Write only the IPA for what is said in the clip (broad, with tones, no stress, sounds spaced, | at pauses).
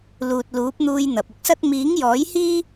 l uː˨ t̚ l uː˨˥ p̚ n̪ uː˧ j n̪ ɐ˨ p̚ ʊ˥ k̚ s ɐ˥ t̚ m iː˨˥ ŋ j ɔː˨˥ j h iː˥